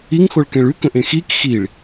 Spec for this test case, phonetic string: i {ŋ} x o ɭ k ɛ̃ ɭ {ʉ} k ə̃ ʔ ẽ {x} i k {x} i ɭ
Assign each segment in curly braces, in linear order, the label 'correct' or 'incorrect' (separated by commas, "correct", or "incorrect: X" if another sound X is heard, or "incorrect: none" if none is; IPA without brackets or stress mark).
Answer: correct, correct, correct, correct